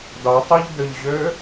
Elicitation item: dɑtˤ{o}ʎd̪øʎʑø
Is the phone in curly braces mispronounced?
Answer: no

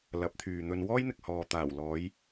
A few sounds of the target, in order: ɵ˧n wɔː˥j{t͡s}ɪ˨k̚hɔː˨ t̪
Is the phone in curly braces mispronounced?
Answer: yes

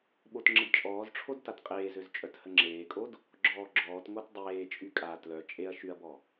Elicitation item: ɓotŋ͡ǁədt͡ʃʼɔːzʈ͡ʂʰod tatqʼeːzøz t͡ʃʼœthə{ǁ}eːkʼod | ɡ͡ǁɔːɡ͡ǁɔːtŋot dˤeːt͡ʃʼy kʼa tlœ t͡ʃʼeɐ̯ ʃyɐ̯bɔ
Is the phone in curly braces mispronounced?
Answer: yes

